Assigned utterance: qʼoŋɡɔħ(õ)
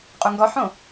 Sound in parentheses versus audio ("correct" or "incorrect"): correct